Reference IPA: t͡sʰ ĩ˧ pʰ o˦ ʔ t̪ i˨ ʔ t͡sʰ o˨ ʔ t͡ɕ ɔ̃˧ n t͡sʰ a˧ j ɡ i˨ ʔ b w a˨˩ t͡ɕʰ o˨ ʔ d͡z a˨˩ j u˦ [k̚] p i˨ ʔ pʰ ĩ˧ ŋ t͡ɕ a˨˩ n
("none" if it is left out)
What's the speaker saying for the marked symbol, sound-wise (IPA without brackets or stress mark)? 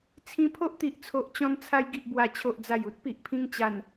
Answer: t̚